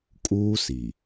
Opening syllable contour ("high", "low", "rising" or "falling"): high